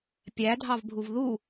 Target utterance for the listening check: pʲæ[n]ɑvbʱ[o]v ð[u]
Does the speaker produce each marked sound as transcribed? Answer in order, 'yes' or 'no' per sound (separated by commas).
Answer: no, no, yes